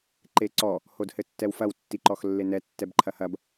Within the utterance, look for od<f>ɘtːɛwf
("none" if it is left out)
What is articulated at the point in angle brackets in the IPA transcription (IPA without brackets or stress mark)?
h